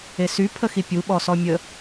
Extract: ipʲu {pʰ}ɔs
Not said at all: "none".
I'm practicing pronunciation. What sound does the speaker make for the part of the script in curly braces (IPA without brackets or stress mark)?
ɓ